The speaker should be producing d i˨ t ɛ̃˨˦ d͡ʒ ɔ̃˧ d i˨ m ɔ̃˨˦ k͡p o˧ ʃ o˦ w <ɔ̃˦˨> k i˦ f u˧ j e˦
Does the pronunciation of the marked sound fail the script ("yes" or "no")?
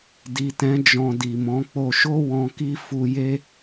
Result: yes